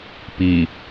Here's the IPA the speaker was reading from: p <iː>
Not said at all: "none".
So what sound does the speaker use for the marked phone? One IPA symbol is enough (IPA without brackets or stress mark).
iː